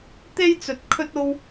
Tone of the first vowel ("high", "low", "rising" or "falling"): high